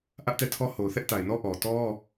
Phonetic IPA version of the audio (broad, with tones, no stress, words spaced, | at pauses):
ʔä˦ʔtɛ˦˨tʰɔ˦ ho˨ʊ̯θɛ˦ʔta˨ɪ̯nɔ˦ ʔɔ˨ tɔ˦